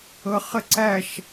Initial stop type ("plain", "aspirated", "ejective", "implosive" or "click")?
click